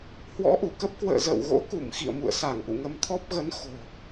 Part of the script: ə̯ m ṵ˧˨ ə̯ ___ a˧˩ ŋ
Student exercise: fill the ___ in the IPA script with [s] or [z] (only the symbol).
s